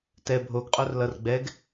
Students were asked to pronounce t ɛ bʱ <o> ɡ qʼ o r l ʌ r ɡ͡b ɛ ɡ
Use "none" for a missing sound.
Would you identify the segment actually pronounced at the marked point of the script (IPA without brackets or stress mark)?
o